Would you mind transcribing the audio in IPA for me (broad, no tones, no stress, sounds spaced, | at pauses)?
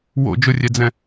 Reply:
w o̰ d͡ʒ ʊ rʲ ɛ d͡z ɛ̃